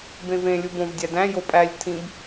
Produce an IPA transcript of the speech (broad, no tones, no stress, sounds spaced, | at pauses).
b ẽ v ẽ lʲ u b õ v dʲ æ d æ̃ j o pʼ æ lʲ tʰ ĩ b